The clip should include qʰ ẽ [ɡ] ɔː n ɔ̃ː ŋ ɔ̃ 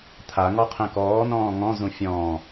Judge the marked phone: incorrect: k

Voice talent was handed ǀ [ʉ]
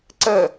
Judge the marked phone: incorrect: ə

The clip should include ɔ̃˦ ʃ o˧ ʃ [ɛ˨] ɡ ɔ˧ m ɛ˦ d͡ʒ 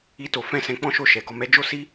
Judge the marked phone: correct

